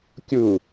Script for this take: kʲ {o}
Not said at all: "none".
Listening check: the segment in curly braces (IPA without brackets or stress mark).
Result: u